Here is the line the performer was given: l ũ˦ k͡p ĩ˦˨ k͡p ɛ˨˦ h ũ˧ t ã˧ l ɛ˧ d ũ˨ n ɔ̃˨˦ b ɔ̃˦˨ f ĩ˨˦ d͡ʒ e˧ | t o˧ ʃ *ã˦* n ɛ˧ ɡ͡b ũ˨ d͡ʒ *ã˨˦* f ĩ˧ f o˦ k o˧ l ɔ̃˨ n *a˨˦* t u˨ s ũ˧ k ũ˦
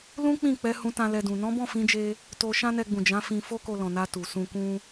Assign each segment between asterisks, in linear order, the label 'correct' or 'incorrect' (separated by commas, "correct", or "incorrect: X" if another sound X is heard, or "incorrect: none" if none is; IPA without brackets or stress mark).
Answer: correct, correct, incorrect: a˧